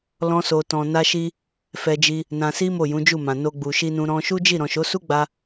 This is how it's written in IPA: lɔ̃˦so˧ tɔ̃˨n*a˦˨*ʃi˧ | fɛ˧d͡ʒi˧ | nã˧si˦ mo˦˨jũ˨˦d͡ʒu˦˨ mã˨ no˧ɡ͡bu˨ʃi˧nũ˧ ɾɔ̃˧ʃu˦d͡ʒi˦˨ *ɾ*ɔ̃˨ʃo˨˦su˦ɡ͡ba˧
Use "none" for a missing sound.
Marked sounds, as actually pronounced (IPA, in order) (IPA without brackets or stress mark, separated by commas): a˧, ɾ